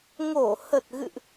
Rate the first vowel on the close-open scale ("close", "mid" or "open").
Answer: mid